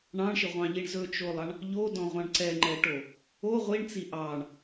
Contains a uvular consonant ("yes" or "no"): yes